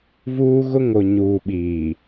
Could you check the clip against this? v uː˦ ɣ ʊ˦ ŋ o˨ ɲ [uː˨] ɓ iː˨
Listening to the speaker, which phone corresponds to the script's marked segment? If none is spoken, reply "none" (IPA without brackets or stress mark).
uː˨